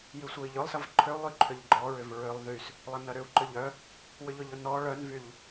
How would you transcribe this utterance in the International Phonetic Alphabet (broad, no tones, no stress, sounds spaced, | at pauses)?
j y sʷ œ i̯ ʎ ʊ lˠ s ɐ v ǃʰ ʏ u̯ lˠ y ǃʰ ʏ ʎ ɡ͡ǃ ɔ ɹ ʏ v ɹ ʏ lˠ ð y s | lˠ ɐ n ɐ ɾ ʏ u̯ ǃ ʏ ʎ œ | w ʏ ʎ ʊ ʎ ʊ n ɔ ɭ œ n v y ʎ